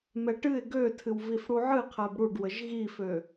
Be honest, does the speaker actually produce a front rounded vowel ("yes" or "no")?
yes